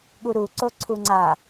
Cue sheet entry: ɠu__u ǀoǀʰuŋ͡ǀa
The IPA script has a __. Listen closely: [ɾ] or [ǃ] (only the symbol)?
ɾ